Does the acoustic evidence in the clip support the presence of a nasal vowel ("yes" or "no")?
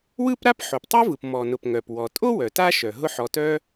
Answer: no